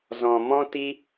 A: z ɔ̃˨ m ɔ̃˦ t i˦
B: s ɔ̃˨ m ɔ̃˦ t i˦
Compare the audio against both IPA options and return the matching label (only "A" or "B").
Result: A